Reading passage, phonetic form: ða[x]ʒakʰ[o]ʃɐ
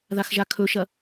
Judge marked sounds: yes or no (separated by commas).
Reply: yes, no